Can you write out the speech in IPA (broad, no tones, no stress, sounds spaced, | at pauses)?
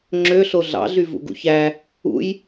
ŋ͡ǁ ø ɬ o ɮ ɑ̰ ɮ y v ṵ ɡ ṵ ç æ | ṵ j